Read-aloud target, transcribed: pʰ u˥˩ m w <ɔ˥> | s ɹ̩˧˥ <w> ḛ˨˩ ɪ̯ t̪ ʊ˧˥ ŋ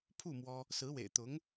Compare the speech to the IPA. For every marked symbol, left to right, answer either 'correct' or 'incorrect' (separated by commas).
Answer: correct, correct